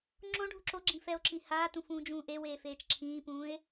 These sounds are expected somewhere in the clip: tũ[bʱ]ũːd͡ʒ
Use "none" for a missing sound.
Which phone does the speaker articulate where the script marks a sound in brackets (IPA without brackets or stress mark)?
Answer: f